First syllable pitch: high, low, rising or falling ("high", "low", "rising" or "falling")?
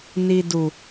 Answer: low